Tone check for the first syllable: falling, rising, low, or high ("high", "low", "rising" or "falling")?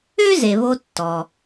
high